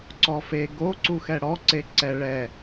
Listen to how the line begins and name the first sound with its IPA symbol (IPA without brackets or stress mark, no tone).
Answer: ǀ